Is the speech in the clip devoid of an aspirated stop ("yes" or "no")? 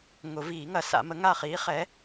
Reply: yes